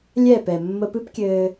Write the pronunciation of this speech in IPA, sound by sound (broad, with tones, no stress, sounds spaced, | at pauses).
lʲ ɛ˦˨ p ɛ˨ mː ə˧ p ɨ˦ p kʲ ɘː˧